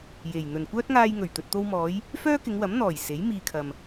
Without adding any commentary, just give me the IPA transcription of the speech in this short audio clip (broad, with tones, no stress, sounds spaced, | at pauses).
j e˨˩ j n̪ ɵ˨˩ n kʷ œː˥ t̚ ŋ aː˧ j ŋ ɵ˨˩ ɥ t̪ ɵ˨ t̚ t̪ o˧ w m ɔː˨˧ j | f œː˥ k ɪ˨˧ ŋ w ɐ˨˥ m n̪ ɔː˨˩ j s e˨˥ j m iː˨ kʰ ɐ˨ m